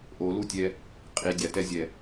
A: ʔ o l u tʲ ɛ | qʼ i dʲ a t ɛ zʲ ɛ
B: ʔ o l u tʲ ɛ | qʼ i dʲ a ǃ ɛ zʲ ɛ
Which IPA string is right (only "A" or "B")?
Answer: A